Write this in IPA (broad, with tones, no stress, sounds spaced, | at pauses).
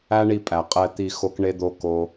æ˦ ɳ i˧ pʼ æ˨ qʼ ɛ˧ t̪ i˧ x o˦ k ɳ e˦ d̪ o˦ k o˦